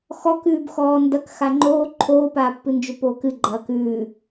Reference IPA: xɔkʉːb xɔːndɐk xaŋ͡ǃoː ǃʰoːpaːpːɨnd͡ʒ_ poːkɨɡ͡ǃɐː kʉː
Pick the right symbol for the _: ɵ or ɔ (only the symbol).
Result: ɵ